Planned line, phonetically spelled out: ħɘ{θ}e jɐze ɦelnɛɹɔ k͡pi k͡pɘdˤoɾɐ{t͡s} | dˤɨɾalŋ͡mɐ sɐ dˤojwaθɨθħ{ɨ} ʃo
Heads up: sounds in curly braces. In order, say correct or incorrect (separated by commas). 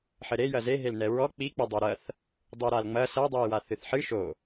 incorrect, incorrect, correct